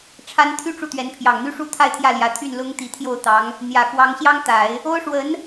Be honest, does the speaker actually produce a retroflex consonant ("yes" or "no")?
yes